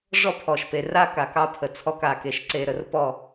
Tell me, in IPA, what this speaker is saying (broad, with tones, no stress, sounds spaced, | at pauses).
ʐ ɔ˦ pʰ ɔ˨ ʃ p e˨ r a˦ k a˨ k ɑ˦ pʰ ə˨ t͡sʰ ɔ˦˨ k a˨ k e˨ ʃ ǀ e˨ ɾ ə˨ r p ɔ˦˨